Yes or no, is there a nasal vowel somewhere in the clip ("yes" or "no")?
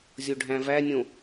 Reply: yes